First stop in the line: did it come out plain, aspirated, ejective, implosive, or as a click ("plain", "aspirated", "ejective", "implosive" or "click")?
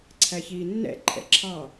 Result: click